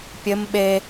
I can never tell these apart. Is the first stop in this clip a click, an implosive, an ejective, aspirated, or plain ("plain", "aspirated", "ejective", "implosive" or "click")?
plain